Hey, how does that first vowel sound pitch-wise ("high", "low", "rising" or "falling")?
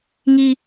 high